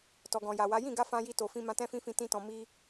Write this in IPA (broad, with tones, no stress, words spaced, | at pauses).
tɔ˨ɡɔ̃˨ ja˨wa˨˦ jĩ˦˨ɡa˧ fã˧ji˧to˨fĩ˧ mã˧tɛ̃˦fĩ˦fĩ˧ tĩ˦tɔ̃˧ mi˦